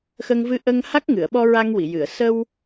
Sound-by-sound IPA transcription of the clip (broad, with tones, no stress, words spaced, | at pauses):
xə˧ŋvɨ˧ʔə˧ŋ ha˦˥k̚ŋɨ˨˩˨ə̯ɓɔ˧ ɹa˧ŋwi˨˩˨jɨ˨˩˨ə̯ sə˧w